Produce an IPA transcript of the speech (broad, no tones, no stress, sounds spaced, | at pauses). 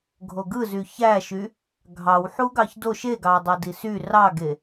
ɡʱ o ɡ ɯ z y ç æ ʃ y | ɡʱ ɑ w ħ u ɡ ɑ ç d o ʃ e ɡ ɑ dˤ ɑ d i s y r ɑ ɡ e